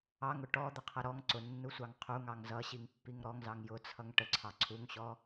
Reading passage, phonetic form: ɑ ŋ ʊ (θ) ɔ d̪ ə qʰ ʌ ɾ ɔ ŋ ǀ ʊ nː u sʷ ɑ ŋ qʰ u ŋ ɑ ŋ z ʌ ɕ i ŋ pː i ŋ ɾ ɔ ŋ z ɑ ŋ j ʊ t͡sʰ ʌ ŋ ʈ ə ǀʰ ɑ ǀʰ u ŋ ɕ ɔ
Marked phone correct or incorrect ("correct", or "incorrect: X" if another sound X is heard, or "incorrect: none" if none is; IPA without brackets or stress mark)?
incorrect: ʈ